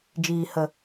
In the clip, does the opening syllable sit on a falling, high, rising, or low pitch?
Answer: low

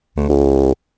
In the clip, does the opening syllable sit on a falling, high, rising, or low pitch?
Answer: low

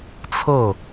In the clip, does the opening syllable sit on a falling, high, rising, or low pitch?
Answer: falling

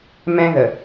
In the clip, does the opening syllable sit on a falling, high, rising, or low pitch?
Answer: high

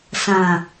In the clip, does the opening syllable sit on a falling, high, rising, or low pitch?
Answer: low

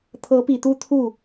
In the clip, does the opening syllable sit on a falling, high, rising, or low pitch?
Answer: rising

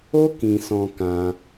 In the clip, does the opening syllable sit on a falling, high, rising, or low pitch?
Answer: high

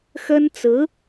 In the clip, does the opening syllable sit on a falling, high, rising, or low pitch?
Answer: high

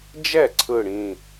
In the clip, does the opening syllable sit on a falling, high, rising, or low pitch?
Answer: falling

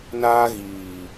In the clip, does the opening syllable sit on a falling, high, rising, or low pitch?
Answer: high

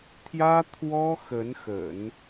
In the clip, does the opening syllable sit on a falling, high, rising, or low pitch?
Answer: high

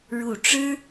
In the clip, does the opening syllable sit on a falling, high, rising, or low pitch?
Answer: low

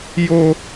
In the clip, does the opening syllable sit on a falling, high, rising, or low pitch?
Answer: high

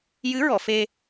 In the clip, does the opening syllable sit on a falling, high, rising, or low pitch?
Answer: rising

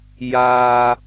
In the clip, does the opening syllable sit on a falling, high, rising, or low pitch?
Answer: low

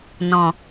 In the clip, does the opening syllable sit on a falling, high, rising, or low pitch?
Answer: low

